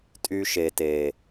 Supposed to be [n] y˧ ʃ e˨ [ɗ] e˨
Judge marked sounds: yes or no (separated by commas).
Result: no, no